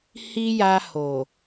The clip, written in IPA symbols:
hi˦ja˧ho˨

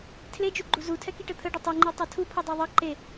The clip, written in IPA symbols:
tʰled͡ʒuɡ͡ǃu zutʰɛkiʈə t̪ʰəɖə tˤuŋ͡ǃitˤʌ tʰupʰedˤe ðˤʌ ǃe

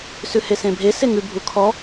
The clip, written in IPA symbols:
sʉhesẽbʱe seŋʉ bʱukʰɔ

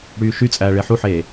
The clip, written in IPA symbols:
ɽyːʃyt͡sʼæː ɭeħuħeː

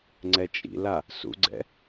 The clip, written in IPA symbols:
ŋ͡ǀɛt͡ʃʼḭla | sṵɡ͡ǀɛ̰

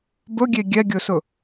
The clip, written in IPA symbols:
bɵɡʲe ɡʲɛɡʲɵsɵ

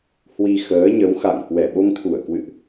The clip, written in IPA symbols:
hwi˧xəː˨˦ɲə˨˦w xa̰˧˨ŋ hwɛ˧˩ɓo˧ŋt̪ʰu˧˩ə̯kwɨ̰˧˨ʔ

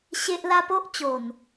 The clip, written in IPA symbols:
ɕe˦ʔla˦ po˦ʔt͡ɕo˨˩n

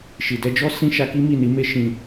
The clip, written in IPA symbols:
ʃi˨dɛ˧d͡ʒɔ˦ sĩ˦ʃa˧ki˦ mi˦˨ni˨˦me˦ ʃĩ˦˨

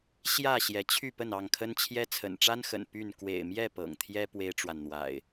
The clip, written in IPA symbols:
ɕjä˥˨ ɕjɛ˨˦t͡ɕʰy˥˨ pə˥˨nɑ˥˨ŋkʰə˦nt͡ɕʰjɛ˦ t͡sʰə̰˨˩nʈ͡ʂa˦nxə̰˨˩n py˥˨n kwḛ˨˩ɪ̯mjɛ˥˨ pɤ̰˨˩ŋt̪ʰjɛ˦ pwe˦ɪ̯ʈ͡ʂwa˨nn̪wa̰˨˩ɪ̯

